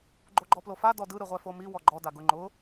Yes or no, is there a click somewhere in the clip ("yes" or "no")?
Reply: yes